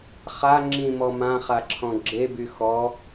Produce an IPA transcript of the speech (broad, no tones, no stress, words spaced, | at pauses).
χa ŋ͡ǁĩmɔ mãχaǁʰɔ̃ ɡ͡ǁeby xɔ